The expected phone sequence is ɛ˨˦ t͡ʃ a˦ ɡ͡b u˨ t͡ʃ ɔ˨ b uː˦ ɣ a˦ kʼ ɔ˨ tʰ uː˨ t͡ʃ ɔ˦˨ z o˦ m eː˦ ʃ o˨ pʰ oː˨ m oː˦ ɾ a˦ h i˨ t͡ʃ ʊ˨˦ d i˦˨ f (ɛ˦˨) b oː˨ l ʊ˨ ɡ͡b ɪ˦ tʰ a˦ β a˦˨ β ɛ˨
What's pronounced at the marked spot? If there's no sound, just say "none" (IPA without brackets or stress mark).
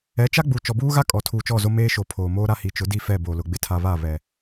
ɛ˦˨